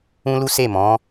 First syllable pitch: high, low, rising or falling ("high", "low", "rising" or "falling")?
high